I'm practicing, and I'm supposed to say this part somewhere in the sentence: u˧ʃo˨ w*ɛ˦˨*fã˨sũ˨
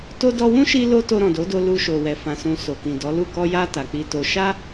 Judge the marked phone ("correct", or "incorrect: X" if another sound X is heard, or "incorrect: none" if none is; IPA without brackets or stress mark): incorrect: ɛ˨